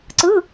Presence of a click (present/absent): present